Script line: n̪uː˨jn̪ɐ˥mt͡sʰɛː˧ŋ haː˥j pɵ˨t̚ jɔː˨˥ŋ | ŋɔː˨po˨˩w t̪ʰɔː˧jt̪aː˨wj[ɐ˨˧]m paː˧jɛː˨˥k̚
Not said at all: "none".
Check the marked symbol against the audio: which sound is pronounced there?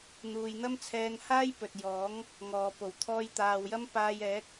ɐ˥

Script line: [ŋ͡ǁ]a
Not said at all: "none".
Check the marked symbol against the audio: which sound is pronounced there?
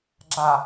ɡ͡ǁ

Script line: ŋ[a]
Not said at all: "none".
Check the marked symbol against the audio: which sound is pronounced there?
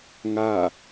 a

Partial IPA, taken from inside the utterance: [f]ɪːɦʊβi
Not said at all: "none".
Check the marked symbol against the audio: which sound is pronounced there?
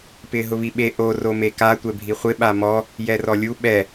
p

